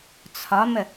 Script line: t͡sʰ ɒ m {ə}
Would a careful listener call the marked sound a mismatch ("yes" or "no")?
no